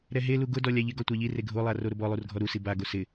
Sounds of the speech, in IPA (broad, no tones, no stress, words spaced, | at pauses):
ɾɛɦelu ɡʊdɔ lʲaʎɪɡɔ tʷaʎire ɡʱolˠa roɾʊbɔlˠur ɡʱɔɾusi baɡo sɪ